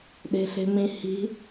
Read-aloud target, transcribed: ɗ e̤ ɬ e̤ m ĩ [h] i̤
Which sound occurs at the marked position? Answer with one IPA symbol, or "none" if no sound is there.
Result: h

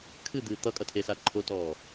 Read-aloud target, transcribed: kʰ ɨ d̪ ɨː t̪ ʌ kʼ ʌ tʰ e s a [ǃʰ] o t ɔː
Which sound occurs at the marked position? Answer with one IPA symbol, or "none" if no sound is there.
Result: ǃʰ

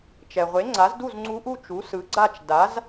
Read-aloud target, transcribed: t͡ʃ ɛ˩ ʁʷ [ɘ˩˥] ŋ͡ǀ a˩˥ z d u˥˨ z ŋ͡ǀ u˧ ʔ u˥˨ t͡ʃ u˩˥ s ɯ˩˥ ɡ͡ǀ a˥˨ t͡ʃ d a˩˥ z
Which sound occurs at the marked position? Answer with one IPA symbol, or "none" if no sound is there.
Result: e˩˥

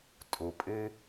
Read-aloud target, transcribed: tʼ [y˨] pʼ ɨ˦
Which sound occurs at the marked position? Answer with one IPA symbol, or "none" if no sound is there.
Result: u˨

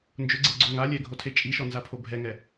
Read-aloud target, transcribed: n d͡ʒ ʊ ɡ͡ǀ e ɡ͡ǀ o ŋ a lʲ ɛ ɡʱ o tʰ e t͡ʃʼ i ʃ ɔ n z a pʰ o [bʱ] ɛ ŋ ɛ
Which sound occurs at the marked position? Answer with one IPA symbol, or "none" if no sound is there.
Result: bʱ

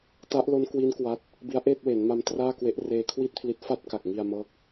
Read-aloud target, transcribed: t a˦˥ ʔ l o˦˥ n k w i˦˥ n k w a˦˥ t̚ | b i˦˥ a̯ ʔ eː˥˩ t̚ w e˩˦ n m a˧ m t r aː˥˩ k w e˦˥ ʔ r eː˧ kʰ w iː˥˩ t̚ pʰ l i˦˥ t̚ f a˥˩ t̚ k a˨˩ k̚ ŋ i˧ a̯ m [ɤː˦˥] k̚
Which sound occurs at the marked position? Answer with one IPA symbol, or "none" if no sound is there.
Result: ɤː˦˥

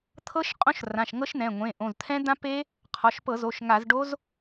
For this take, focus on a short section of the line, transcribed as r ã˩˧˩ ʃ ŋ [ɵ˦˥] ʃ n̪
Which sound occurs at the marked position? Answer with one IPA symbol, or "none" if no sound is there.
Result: ɤ˦˥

